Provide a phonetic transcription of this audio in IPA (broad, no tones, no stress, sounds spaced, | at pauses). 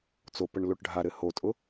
t͡s o p ə ɳ l o ʈ ɖʱ a ɾ ɘ h o tʼ ʊ